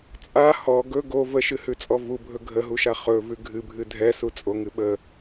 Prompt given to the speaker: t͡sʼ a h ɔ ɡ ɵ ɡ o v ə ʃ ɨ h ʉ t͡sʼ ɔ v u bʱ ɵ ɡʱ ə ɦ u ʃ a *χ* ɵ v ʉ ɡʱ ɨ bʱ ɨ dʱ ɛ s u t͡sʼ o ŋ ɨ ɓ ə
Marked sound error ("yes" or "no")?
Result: no